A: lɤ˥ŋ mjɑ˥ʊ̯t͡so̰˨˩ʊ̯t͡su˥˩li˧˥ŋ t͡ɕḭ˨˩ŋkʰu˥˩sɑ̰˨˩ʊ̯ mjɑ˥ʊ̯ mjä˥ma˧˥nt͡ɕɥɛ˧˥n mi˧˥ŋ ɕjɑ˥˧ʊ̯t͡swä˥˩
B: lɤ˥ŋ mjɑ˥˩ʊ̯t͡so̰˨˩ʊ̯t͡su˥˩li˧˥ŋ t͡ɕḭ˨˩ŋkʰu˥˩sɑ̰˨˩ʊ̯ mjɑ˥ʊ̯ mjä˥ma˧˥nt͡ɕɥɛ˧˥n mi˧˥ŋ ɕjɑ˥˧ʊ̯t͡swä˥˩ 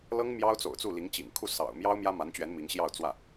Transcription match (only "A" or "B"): A